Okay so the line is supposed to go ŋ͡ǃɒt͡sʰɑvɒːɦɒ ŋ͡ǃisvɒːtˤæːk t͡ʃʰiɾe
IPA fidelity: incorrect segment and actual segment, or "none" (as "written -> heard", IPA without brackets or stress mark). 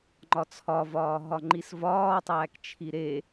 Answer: ɑ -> ɒ